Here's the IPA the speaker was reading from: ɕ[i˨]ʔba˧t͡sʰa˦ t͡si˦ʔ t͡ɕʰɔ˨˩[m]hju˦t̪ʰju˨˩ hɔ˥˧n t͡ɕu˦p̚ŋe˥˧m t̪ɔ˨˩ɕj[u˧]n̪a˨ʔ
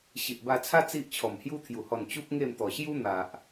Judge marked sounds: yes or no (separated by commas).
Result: yes, yes, no